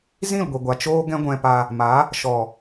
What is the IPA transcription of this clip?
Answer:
z ĩ˦˨ l ɡʷ i˨ ɡʷ a˨ t͡ʃ oː˦ ɡ ɛ̃˦ ɡʷ ɛ̃˧ p a˧ | m a˨˦ | ʃ ɔ˨

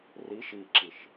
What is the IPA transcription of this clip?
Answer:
r i ʃ i ǁ i ʃ

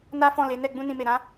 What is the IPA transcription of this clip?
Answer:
n a˦ f ɔ̃˦˨ l e˨˦ n ɛ˦˨ ɡ͡b ũ˧ n ĩ˨ m e˨ ɾ ã˨˦

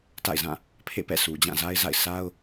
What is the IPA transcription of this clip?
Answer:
t a̰˦˨ ɪ̯ z ã˦˨ | pʰ ḛ˦˨ p ɛ̰˦˨ s u˨ d͡ʑ ã˦˨ z a˦ ɪ̯ z a̰˦˨ ɪ̯ s a˦ ʊ̯

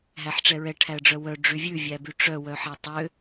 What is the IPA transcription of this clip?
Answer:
ɦ æ ħ ʈ͡ʂ ɛ ɹ ɛ ʈʰ æ ə̯ ɖ͡ʐ œ w œ ɖ͡ʐ y vʲ ʉ vʲ æ b y ʈ͡ʂ œ w œ ħ æ tˤ ø

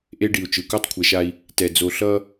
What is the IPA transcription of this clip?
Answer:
ʔ e˦ ɖ i˨ u̯ t͡ʃ ɯ˨ k u˦ tˤ kʷʰ ɛ˨ ʃ a˦ i̯ | t ɛ˨ d͡z o˨ ɬ ʌ˦

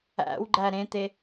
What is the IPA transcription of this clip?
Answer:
æ̰ w ɡ͡ǃ æ ɾ ẽ t̪ e

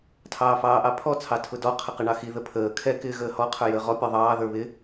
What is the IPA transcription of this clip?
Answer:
tʰ ɑː f ɑː ʔ ɑ pʰ ɔ t͡sʰ ɑ tʰ ʊ d ɔ qʰ ə q ɪ ɳ ɑ x i ð ə pʰ əː kʰ ɛ k ɪː ɣ əː h ɔ qʰ ə˞ j əː ʁ ɔ pʲ ɔ ðˤ ɑː ð ə˞ β ɪ

